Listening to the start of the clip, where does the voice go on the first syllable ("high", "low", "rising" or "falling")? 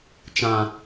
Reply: low